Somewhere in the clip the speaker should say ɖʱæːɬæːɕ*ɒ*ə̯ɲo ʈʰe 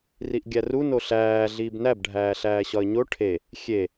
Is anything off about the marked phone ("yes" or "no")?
no